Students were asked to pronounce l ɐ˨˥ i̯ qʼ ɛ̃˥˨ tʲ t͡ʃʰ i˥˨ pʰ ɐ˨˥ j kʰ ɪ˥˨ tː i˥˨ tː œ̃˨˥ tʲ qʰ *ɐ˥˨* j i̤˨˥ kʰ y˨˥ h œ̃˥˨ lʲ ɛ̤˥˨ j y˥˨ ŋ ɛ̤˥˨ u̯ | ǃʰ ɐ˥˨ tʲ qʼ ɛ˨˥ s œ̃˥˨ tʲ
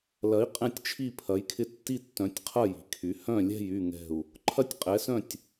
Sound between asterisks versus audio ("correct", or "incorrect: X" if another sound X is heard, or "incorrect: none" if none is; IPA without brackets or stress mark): correct